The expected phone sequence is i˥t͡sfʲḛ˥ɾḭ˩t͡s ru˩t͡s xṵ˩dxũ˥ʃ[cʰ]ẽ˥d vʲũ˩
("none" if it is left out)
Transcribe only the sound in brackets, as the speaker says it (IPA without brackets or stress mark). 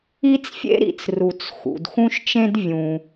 t͡ʃ